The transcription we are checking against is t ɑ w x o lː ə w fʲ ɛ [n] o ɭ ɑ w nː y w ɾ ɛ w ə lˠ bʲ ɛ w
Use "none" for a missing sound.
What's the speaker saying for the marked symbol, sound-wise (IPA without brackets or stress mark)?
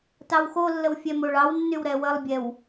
m